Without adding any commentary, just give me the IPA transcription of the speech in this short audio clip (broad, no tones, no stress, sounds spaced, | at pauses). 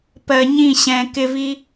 p ɜ ɲ ĩ ɕ ɛ̃ k ɪ v i